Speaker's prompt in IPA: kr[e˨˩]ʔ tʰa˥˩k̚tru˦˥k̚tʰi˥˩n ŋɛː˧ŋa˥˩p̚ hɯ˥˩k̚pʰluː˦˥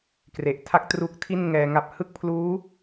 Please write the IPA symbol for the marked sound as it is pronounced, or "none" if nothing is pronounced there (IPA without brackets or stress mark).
e˨˩